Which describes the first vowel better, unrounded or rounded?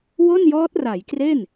rounded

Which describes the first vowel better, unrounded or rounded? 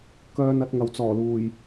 rounded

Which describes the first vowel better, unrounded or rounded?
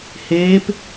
unrounded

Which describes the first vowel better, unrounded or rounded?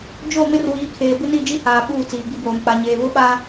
rounded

